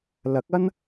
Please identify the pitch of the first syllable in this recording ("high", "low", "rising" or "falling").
rising